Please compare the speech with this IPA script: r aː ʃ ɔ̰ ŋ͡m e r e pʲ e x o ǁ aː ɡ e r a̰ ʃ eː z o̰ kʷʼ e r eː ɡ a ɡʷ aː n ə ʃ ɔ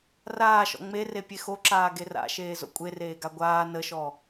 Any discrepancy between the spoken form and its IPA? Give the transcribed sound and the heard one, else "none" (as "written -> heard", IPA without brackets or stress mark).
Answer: none